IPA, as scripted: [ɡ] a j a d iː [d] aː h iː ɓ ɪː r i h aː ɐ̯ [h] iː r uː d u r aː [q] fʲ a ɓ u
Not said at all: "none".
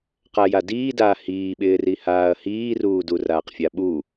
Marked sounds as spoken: q, d, h, q

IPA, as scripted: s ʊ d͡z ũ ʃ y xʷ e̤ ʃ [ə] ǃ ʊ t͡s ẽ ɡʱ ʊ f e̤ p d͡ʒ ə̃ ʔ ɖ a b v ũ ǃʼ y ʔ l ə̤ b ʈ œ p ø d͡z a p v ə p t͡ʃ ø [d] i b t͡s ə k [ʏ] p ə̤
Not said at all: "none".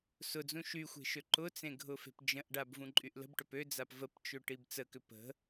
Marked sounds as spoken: ø, ʈ, ʏ

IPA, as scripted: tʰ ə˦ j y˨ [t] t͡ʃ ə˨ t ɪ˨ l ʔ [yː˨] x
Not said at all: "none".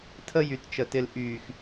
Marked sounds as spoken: t, yː˨

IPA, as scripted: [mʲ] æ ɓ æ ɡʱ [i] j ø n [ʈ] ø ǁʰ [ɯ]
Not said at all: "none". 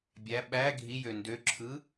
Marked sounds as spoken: bʲ, i, d, ɯ

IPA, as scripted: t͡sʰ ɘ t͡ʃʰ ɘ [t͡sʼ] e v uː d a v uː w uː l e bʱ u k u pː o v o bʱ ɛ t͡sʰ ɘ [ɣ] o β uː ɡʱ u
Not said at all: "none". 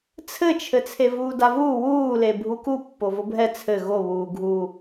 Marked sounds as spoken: t͡sʰ, ɣ

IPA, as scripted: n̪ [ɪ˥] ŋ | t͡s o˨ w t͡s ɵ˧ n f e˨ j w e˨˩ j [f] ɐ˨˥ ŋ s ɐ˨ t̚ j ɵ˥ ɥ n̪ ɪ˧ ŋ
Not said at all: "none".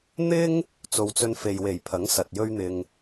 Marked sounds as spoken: ɪ˥, pʰ

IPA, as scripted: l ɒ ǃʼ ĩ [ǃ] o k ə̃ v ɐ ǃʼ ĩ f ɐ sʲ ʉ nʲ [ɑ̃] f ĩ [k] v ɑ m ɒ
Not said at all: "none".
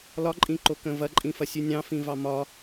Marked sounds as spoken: ǃ, ɑ̃, none

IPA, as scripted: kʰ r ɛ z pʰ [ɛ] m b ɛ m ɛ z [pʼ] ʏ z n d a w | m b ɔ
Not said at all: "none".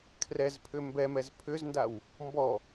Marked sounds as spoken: ʏ, pʰ

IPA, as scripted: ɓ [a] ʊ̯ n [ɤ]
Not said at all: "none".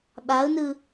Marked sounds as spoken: a, ɯ

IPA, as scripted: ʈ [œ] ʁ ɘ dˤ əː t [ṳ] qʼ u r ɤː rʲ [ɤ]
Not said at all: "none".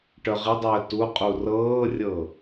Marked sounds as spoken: œ, u, ɤ

